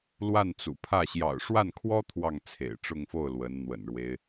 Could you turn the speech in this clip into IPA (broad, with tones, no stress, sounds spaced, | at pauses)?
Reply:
l w a˥˩ n t͡s ṵ˨˩ pʰ ä˥˩ ɕ j ɑ̰˨˩ ʊ̯ ʂ w a˥˩ n kʰ w ɔ˥ t̪ʰ w ɑ˥˩ ŋ t͡sʰ ḛ˨˩ ɪ̯ ʈ͡ʂ ʊ˥˧ ŋ f o˥˩ ʊ̯ l w ə˧˥ n n̪ w ə̰˨˩ n ɻ w e˦ ɪ̯